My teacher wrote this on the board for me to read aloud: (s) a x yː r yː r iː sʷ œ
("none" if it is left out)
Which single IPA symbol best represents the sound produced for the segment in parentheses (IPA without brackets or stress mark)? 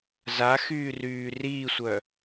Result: z